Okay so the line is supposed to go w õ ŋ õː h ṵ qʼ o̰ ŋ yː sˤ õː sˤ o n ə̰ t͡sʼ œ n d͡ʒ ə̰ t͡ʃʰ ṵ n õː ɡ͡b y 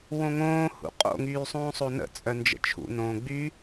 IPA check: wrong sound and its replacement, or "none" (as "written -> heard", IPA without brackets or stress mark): none